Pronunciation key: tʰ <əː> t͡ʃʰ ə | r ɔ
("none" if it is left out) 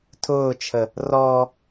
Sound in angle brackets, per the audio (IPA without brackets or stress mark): ʊː